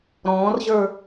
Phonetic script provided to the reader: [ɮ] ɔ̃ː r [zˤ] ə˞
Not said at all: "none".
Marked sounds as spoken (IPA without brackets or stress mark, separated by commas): ɾ, ʑ